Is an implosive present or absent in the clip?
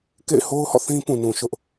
absent